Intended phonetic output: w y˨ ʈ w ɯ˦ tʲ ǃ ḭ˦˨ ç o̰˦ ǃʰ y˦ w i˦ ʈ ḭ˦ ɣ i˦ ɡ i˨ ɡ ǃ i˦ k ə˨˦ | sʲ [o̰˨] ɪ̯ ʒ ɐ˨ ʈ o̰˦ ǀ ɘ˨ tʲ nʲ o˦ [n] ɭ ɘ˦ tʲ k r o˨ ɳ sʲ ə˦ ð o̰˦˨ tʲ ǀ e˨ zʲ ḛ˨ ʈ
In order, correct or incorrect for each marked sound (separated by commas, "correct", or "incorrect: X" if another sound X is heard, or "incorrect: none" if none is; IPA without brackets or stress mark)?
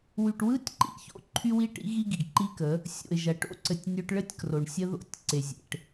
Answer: correct, incorrect: ʈ